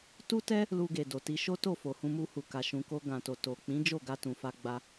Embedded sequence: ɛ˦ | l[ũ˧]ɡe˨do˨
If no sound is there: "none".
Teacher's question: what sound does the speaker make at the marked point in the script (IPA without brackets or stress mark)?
u˧